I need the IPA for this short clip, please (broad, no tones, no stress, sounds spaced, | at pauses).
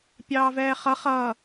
pʲ ɑː v ɛː χ ʌ χ ʌ